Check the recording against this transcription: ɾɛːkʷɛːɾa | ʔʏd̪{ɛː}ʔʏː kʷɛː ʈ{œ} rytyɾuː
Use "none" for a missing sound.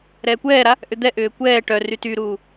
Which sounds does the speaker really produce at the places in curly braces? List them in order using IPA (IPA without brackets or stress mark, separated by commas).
ɛ, œ